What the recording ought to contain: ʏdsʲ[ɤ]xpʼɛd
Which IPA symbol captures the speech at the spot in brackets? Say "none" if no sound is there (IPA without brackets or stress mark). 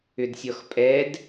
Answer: ɔ